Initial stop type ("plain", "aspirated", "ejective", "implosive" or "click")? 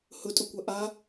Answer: ejective